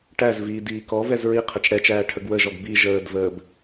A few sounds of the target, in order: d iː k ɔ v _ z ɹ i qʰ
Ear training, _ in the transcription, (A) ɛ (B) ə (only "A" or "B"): A